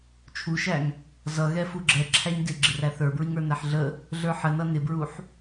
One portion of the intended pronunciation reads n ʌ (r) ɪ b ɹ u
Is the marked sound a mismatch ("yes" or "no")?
yes